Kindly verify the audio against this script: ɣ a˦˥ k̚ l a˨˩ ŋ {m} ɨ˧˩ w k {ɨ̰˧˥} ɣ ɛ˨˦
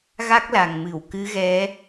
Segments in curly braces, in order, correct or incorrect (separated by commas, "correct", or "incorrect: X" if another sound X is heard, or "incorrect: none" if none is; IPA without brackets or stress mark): correct, incorrect: ɨ˨˦